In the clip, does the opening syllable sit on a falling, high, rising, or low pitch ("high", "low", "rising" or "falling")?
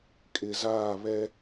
low